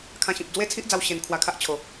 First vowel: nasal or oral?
nasal